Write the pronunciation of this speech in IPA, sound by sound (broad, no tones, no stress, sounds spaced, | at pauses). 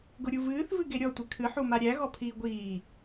ɡ ʊ ɾʲ u v ɨː θ v ɨ ɡ e ɾʲ ɔ tʷ ɨ kʰ ɨ ħ u m a ɾʲ æ ɣ ɔ pʰ iː ɡʷ iː